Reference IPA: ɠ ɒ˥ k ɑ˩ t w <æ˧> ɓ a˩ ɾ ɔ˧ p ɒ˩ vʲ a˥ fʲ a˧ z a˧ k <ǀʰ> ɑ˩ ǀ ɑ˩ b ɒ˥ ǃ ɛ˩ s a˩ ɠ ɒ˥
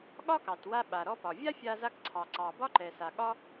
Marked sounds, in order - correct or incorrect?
incorrect, correct

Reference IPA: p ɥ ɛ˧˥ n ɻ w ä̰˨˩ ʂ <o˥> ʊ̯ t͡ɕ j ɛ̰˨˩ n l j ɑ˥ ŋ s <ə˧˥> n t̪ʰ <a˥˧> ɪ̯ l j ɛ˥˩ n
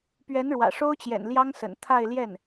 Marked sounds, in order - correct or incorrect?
correct, incorrect, correct

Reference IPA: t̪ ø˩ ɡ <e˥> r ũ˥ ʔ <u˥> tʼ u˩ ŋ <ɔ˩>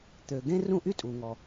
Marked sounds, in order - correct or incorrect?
incorrect, incorrect, correct

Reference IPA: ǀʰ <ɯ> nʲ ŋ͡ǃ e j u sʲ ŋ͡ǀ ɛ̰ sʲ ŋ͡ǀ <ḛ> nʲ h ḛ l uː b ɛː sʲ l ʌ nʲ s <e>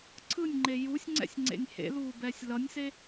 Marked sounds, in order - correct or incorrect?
correct, correct, correct

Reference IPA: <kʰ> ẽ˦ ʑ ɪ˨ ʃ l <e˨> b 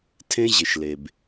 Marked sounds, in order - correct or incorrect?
incorrect, correct

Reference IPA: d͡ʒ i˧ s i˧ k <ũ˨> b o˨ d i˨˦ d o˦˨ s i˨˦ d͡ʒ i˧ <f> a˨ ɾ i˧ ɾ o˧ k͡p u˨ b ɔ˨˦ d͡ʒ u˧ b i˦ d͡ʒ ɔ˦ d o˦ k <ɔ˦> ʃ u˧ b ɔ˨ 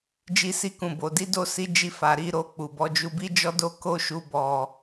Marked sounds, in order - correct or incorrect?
correct, correct, incorrect

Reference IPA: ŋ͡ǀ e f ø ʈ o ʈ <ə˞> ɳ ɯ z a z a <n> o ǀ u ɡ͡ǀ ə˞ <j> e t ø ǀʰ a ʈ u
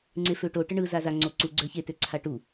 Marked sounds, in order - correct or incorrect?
incorrect, incorrect, incorrect

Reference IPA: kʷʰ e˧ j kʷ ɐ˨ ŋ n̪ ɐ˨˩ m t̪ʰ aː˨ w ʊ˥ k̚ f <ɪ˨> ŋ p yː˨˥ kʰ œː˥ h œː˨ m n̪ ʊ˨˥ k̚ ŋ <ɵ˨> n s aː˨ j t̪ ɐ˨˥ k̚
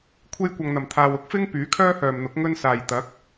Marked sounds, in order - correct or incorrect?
incorrect, incorrect

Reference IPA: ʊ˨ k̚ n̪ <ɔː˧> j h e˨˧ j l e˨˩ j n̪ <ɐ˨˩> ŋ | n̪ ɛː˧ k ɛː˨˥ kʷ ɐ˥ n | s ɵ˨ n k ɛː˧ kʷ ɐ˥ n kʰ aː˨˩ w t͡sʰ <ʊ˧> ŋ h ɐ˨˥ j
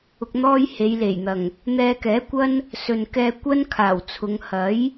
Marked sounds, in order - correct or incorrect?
incorrect, correct, incorrect

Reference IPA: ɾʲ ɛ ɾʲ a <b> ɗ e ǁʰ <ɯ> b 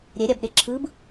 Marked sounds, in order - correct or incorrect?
correct, correct

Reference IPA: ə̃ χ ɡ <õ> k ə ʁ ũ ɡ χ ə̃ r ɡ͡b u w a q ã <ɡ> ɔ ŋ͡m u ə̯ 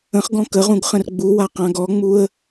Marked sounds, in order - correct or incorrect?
incorrect, correct

